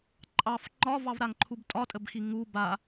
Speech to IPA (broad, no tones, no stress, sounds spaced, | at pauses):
ǃʼ ɑ f ŋ͡ǃ ɒ v ɑ v ɾ a ŋ ǃʰ u b tʼ ɒ tʼ ə b x i ŋ u b a